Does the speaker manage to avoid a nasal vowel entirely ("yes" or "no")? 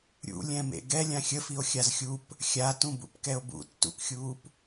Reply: no